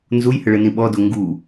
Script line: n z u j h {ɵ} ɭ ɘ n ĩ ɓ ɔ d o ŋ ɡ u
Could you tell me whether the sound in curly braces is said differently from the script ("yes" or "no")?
yes